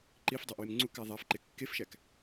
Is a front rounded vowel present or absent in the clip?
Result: absent